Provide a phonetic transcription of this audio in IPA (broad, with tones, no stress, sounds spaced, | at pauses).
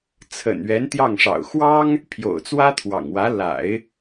t͡sʰ ə̰˨˩ n ɥ ɛ˧˥ n t̪ j ɑ˥˩ ŋ ʂ ɑ̰˨˩ ʊ̯ x w ɑ˥ ŋ | pʰ j o̰˨˩ ʊ̯ t͡s w ä˥ t̪ʰ w ɑ̰˨˩ ŋ w ä˧˥ l a̰˨˩˦ ɪ̯